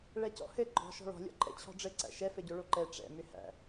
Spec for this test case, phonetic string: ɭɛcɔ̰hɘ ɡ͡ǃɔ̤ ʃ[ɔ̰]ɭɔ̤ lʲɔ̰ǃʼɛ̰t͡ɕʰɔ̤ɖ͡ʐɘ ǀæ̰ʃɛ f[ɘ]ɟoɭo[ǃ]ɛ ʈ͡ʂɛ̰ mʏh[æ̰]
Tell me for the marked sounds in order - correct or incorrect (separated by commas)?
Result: incorrect, correct, correct, correct